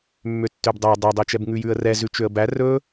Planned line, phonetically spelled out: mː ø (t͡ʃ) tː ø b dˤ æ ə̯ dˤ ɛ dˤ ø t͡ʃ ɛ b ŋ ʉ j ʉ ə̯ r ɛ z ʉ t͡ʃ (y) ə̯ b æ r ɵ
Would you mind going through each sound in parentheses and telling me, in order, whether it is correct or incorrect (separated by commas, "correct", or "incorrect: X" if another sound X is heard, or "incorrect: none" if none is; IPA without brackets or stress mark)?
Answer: incorrect: none, incorrect: ø